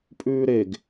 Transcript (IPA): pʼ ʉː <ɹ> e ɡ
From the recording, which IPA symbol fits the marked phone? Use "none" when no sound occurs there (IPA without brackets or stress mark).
ɾ